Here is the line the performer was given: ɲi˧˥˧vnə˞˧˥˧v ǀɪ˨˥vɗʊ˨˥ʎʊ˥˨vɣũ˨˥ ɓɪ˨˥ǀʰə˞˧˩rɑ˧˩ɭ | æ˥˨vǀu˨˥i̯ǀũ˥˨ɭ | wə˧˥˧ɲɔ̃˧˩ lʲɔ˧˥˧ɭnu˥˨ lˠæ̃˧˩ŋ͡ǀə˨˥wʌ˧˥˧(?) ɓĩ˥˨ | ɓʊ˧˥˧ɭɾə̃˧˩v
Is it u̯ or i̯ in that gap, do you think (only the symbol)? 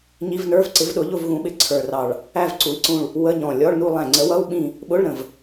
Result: u̯